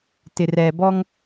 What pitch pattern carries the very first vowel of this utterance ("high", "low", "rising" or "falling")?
low